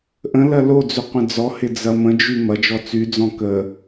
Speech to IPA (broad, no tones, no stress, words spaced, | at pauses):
ʔə̃lɐ lod͡zʏ qʷə̃d͡zɔhɪ d͡zɐmə̃d͡ʒy mɐd͡ʒɔ t͡syd͡zɔ̃ kə